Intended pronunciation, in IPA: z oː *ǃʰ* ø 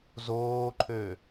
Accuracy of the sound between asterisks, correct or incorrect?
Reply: correct